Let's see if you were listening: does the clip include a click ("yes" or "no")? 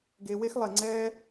yes